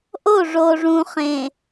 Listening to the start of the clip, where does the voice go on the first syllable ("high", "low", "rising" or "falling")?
falling